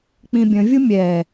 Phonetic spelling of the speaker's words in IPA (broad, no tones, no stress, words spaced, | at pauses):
k͡pĩbʲə̃vʲu mʲɛ